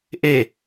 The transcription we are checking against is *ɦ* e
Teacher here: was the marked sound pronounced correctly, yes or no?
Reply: no